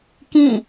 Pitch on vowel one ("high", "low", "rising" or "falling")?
falling